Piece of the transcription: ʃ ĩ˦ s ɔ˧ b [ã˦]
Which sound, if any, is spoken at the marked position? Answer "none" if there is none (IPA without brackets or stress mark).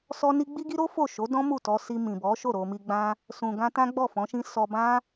ã˦